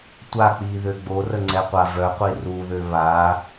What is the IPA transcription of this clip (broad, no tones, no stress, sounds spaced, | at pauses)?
tʷ a k͡p iː ð ø ɡ͡b o r ə ŋ͡ǀ ɛ qʷ a v œ qʷ i r u ð ø β a